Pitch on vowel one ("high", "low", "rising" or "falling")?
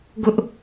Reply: high